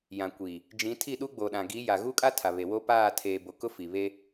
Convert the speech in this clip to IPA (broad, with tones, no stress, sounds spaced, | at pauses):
j ã˨ kʷ i˨ | d͡ʒ ĩ˨˦ tʰ i˦˨ ɗ u˦ ɡ͡b o˨ ɗ ã˨ ɡ i˨˦ j a˨ ɣ u˦ kʼ a˦ tʰ a˨ β e˨ w o˦ p aː˦˨ tʰ eː˨ b o˨ k ʊ˦ f i˨ β e˦